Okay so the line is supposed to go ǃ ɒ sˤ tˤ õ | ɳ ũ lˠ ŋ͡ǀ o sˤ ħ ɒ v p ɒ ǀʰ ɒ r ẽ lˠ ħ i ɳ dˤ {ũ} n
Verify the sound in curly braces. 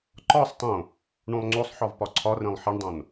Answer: incorrect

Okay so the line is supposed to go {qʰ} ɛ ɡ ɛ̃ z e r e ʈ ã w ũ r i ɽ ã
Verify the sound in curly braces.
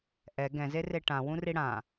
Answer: incorrect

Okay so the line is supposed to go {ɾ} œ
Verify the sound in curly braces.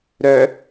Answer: correct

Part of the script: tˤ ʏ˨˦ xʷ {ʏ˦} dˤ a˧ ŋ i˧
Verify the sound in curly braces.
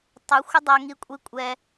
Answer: incorrect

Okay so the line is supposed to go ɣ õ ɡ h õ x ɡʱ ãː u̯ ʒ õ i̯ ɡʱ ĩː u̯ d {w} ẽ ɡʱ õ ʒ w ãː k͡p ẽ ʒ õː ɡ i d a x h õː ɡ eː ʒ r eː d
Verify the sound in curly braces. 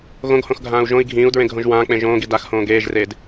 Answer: incorrect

